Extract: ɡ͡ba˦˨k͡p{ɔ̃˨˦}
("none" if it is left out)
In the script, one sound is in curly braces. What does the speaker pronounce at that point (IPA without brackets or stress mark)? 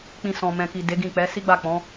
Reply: ɔ̃˨˦